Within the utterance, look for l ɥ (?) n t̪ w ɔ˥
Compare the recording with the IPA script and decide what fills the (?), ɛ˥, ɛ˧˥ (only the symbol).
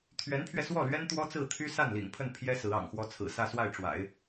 ɛ˥